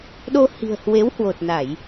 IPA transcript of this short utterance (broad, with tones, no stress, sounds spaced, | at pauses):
ɗ o˧ h i̤˨˩ ə̯ h w e˨˦ w h w o˨˩ t̚ n a˧˩˨ j